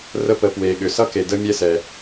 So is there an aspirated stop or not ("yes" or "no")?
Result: no